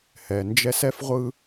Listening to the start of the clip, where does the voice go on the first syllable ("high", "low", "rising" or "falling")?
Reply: low